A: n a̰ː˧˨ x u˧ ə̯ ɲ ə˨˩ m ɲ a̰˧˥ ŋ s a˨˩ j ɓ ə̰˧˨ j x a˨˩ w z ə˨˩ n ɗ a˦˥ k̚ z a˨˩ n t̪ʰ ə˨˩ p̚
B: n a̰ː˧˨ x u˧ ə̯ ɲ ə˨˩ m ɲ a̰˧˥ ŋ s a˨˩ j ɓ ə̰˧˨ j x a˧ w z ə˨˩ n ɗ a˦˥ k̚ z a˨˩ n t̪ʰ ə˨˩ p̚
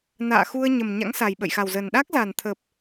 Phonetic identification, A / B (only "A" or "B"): A